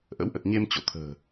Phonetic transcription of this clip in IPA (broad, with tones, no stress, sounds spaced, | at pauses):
ʔ ə̰˧˥ w ʔ ə˨˩ t̚ ɲ e˧ m t͡ɕ o̰˧˨ t̪ʰ ə̤ː˨˩